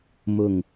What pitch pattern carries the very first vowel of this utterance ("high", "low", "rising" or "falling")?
low